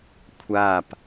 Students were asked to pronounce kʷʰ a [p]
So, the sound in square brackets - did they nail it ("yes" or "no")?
yes